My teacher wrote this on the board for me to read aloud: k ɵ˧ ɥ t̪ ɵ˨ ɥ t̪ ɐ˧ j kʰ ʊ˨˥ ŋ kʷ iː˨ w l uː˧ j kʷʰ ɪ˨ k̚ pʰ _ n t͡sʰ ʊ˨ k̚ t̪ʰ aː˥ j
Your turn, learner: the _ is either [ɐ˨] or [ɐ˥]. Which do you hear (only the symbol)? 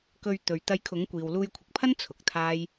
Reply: ɐ˥